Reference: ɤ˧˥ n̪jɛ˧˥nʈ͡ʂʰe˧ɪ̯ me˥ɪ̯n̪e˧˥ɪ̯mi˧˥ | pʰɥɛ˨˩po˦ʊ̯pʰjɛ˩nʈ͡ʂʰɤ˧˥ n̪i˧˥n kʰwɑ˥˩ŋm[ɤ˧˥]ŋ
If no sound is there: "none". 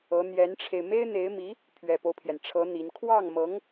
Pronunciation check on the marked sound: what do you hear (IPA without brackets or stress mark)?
ɤ˧˥